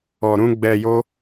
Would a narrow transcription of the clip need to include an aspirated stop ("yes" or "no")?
no